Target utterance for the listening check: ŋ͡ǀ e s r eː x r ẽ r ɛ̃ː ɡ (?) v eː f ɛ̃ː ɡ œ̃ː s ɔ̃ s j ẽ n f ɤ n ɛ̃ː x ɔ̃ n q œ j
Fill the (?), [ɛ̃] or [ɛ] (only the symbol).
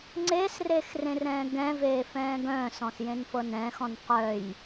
ɛ̃